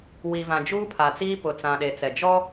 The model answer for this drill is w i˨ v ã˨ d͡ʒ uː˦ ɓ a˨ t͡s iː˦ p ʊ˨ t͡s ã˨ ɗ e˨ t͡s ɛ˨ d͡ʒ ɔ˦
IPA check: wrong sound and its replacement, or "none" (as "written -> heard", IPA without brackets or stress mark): ɓ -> pʰ